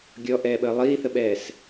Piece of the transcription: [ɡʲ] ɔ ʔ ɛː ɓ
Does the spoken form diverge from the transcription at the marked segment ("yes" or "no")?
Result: no